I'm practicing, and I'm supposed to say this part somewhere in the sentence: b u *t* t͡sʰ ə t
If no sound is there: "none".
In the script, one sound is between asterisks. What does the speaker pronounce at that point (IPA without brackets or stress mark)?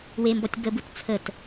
t